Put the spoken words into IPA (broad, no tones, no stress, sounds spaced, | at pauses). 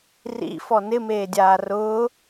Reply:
r ḭ f ɔ n ɪ m eː dʲ aː r ʊː